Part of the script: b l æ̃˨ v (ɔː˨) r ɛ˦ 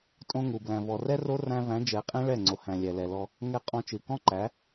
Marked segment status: incorrect: ɔ˨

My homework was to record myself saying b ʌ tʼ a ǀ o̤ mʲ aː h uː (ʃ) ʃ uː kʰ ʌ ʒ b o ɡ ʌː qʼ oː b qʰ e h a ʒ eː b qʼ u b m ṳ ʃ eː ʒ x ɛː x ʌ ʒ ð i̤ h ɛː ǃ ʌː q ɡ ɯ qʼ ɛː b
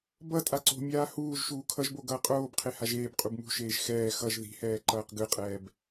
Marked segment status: incorrect: ʒ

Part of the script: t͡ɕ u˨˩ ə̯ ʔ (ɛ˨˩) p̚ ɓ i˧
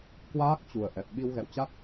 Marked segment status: correct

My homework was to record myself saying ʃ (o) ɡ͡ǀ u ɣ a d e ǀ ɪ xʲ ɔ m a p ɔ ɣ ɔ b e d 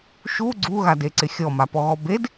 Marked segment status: incorrect: u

